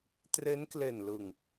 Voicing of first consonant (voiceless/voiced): voiceless